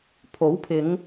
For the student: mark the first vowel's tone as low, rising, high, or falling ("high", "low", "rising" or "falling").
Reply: rising